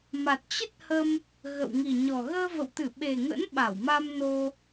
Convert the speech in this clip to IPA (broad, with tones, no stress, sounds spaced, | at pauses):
m a˨˩ t̚ t͡ɕ ə˦˥ t̚ h ə˧ m | ɣ ə̰˧˨ w ŋ i˨˩ ɲ ɔ˨˩ ɣ əː˧ v ə̰˧˨ w t̪ ɨ˧˩ ɓ e˨˩ ŋ ə̰˧˥ n ɓ a˧˩ w m a˧ m n o˧